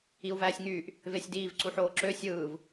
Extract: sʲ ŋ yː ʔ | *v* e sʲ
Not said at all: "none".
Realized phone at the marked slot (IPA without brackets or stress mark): v